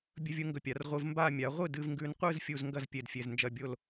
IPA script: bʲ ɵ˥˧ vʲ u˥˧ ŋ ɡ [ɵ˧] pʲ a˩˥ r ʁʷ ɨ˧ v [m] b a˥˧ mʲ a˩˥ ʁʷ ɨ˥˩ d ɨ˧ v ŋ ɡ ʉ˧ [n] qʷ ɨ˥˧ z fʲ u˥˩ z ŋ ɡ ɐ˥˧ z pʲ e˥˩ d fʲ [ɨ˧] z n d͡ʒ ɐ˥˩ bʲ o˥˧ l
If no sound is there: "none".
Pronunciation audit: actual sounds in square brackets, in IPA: ɵ˧, m, n, e˧

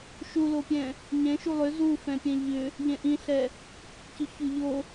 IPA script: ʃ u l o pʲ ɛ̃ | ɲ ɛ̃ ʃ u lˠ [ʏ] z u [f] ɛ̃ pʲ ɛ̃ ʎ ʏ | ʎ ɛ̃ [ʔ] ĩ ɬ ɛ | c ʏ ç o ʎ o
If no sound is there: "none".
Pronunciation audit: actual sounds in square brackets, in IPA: ʏ, f, ʔ

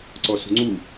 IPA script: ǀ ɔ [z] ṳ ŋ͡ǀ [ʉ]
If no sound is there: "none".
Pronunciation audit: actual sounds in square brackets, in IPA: s, u

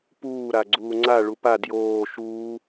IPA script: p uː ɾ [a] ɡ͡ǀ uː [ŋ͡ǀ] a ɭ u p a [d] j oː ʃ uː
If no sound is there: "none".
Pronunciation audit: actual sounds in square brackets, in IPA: a, ŋ͡ǀ, d

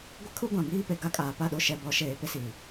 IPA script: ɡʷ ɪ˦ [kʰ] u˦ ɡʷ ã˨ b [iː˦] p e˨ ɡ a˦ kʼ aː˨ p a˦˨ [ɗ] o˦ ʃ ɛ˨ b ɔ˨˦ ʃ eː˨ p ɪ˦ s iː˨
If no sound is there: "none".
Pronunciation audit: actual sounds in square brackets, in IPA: kʰ, iː˦, ɗ

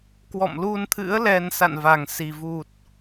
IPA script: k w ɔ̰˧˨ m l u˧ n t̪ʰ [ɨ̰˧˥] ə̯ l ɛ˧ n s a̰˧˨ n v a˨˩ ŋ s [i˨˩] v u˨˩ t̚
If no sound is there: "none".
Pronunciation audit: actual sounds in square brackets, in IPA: ɨ̰˧˥, i˨˩

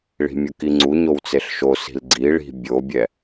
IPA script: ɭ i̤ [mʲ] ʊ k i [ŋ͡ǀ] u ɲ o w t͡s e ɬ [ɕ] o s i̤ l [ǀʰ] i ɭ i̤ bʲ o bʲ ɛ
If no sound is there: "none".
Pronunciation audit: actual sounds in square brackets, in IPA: mʲ, ŋ͡ǀ, ʃ, ɡ͡ǀ

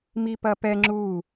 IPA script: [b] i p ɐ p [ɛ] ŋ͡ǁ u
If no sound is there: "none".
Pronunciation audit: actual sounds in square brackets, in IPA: m, ɛ

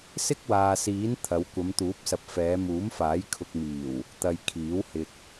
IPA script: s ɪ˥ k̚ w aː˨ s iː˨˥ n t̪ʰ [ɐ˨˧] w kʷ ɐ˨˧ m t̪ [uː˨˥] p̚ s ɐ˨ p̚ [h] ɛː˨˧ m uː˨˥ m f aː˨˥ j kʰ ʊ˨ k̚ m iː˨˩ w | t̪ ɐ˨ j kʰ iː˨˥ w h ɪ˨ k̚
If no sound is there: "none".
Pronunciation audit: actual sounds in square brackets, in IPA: ɐ˨˧, uː˨˥, f

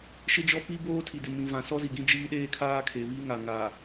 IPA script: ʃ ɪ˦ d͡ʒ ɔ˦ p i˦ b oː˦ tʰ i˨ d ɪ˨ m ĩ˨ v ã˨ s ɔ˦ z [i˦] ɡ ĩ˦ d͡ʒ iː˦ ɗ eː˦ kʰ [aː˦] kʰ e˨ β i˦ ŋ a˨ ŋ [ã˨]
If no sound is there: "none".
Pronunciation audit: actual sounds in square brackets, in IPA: i˨, aː˦, a˨

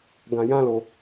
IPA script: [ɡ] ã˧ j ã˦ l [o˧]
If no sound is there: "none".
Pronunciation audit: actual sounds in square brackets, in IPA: ɡ, o˧

